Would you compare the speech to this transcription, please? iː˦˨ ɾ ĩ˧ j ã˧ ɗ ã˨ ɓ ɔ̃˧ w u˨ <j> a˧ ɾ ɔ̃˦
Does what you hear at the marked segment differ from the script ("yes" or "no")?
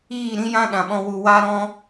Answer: yes